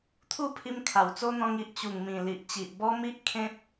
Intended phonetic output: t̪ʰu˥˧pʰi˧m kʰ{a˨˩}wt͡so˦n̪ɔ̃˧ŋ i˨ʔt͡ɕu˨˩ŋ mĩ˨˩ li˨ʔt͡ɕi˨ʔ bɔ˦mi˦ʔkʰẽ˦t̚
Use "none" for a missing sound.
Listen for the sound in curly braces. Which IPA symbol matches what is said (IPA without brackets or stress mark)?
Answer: a˨˩